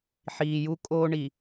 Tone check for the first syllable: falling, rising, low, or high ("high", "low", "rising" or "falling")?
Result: low